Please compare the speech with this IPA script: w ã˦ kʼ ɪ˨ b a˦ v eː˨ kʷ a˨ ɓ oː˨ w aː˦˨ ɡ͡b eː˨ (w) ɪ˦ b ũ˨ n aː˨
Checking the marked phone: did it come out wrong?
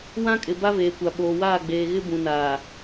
yes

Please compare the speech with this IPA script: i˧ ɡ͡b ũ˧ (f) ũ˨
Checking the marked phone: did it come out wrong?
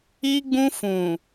no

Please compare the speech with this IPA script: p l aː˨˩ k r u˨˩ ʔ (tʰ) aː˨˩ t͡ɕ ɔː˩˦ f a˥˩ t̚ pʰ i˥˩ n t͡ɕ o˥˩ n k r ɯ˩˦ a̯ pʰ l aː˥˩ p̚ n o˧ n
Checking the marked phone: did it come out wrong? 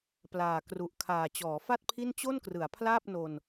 yes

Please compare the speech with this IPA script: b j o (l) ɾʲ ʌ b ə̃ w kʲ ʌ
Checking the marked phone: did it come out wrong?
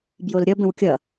no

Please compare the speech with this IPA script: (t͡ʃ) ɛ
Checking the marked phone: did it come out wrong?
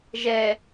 yes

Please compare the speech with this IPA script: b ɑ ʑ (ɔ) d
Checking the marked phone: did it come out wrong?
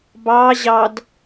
yes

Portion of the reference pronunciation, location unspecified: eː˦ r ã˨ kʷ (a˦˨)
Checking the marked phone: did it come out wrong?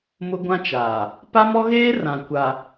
yes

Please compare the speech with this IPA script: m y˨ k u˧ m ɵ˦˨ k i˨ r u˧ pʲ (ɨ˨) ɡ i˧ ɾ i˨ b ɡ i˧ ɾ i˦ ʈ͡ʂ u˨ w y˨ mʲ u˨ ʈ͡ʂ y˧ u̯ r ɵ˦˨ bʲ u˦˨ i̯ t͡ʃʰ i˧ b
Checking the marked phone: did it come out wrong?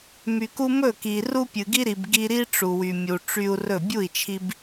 no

